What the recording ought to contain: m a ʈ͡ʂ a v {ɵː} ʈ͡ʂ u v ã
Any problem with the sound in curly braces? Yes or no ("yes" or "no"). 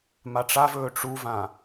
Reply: no